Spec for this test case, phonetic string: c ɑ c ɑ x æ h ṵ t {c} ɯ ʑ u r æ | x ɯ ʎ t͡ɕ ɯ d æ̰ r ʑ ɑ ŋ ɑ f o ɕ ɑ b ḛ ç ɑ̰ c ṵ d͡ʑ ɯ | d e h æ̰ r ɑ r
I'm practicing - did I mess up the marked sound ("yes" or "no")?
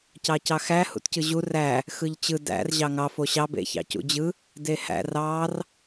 no